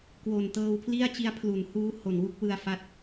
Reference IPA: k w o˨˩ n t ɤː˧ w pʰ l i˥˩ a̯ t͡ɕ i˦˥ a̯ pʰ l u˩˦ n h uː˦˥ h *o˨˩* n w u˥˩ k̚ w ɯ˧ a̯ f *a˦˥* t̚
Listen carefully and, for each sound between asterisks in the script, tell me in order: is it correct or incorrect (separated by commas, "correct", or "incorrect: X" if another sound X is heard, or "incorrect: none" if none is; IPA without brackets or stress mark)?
correct, correct